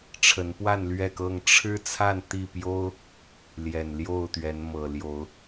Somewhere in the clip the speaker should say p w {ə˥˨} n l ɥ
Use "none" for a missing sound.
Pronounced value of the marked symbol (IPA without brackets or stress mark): a˥˨